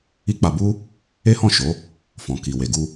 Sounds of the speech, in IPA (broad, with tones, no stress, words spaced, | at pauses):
i˦k͡pa˧bu˦ | e˦hɔ̃˦˨ ʃo˨˦ | fɔ̃˨ki˨we˨ ɡu˧